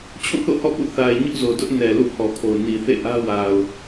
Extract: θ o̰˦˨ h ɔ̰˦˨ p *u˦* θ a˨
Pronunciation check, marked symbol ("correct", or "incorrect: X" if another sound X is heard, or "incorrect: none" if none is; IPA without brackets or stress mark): incorrect: ṵ˦˨